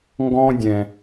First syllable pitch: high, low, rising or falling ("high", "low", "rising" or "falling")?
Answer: high